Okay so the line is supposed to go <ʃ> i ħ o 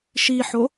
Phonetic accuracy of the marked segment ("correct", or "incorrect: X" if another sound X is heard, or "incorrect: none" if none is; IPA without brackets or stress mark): correct